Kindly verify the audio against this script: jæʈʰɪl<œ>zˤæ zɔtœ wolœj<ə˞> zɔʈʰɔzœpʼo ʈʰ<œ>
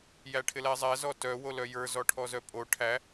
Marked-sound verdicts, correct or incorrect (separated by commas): incorrect, correct, incorrect